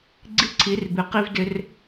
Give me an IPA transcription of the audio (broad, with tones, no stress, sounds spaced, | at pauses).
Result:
ɡ͡ǀ i˦ ǀʰ i˨˦ r b ɪ˨ q i˦ v d ɪ˦ r